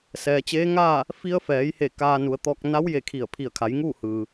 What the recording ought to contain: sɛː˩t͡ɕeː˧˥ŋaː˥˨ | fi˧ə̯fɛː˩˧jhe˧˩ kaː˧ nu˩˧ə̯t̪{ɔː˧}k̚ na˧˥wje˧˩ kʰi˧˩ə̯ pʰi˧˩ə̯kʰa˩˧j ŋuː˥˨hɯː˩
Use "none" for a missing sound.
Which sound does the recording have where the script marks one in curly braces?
ɔː˧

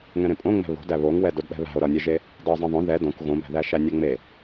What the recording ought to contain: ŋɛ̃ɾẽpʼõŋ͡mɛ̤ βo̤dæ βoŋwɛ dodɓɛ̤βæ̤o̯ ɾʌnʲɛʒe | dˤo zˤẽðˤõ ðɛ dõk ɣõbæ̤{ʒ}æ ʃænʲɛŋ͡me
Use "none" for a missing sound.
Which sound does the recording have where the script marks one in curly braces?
ð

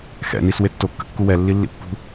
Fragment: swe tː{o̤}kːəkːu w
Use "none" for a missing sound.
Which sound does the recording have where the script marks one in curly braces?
o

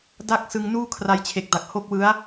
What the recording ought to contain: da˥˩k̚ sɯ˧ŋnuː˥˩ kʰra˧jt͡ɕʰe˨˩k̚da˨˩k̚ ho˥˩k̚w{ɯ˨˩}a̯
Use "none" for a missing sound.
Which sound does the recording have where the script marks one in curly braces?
ɯ˦˥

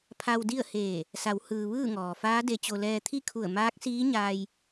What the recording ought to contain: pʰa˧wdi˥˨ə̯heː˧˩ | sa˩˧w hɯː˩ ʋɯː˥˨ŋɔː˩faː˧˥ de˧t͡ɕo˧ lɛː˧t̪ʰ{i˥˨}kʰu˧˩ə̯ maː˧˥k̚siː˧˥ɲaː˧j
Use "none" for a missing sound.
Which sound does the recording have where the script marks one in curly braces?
i˥˨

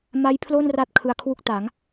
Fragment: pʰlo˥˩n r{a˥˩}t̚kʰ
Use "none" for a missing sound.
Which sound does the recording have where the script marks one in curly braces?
a˥˩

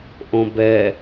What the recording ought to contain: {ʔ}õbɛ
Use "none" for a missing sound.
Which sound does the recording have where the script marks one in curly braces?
ʔ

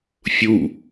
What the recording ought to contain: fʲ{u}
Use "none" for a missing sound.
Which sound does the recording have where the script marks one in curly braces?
u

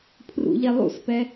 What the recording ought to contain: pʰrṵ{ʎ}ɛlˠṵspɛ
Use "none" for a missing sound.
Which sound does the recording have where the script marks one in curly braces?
ʎ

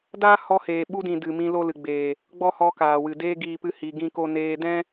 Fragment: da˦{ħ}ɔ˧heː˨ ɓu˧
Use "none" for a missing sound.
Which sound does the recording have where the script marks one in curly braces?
h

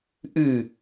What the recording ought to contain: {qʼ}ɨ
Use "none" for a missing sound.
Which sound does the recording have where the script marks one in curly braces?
ʔ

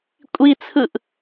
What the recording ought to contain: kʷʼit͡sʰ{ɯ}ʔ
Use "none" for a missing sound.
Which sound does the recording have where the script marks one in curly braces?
ɯ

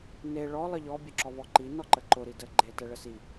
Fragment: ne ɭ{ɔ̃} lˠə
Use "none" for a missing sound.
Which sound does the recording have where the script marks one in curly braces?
ɔ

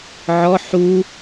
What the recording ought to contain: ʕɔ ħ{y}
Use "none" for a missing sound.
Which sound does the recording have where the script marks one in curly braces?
u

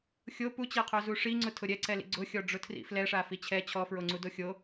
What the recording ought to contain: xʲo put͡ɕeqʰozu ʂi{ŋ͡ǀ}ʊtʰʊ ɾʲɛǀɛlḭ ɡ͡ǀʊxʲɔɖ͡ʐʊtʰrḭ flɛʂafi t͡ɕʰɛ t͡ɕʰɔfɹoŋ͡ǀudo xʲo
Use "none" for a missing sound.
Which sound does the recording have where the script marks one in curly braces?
ŋ͡ǀ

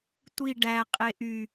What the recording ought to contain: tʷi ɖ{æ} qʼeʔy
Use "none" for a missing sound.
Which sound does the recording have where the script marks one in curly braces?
æ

